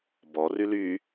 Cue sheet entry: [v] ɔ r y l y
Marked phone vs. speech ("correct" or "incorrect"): incorrect